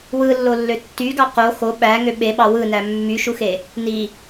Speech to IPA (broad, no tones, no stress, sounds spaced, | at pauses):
w ɯ lː o lː ø tː y ɡ ɑ q o x o ɓ æ ŋ ø ɓ e ɓ ɑ w ɯ n æ mː y ʃ u x e | n i